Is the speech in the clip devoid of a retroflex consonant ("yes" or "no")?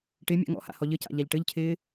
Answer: no